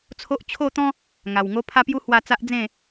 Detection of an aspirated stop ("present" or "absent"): present